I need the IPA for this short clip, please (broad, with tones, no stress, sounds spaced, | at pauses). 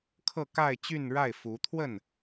kʰ ɤ˥˧ k a˥˧ ɪ̯ t͡ɕ y˥˧ n ɻ a˥˩ ɪ̯ f u˧˥ t̪ʰ w ə˥˩ n